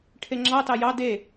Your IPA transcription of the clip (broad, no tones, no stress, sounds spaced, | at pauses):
ʈʰ e ŋ͡ǁ ɑ t ɑ j ɑ d e